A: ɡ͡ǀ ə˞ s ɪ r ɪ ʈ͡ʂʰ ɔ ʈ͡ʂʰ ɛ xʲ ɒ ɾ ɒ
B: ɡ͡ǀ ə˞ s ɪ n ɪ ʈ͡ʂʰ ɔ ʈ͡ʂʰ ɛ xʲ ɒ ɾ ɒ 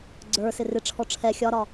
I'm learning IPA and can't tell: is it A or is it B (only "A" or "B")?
A